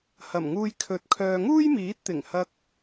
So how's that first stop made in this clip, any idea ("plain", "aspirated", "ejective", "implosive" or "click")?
aspirated